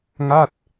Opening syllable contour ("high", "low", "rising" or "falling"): falling